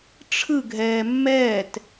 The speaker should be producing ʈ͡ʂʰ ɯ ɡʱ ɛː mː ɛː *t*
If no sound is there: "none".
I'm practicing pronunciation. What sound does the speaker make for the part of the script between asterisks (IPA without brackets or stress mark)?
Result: t